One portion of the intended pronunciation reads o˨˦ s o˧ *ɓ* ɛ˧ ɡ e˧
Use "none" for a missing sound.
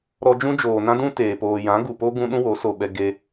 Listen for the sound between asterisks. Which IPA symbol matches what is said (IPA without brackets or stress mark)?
ɓ